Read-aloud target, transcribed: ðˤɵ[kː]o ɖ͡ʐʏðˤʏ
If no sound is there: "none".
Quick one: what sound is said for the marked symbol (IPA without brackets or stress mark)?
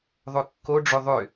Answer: kː